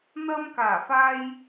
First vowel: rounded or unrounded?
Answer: unrounded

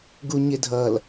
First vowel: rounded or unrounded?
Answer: rounded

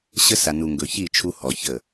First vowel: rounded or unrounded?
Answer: unrounded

